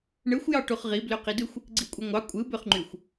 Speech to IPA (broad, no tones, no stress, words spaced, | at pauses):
ɳɯxʷ jɑʈuχʁi bløqidɯxʷ | ɡ͡ǀikʷʼɯŋʷɑ kʷʼɯ bøχŋ͡ǃyxʷ